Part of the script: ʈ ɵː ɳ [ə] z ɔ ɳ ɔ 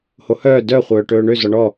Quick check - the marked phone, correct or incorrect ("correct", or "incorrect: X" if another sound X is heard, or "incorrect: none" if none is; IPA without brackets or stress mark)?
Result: incorrect: ø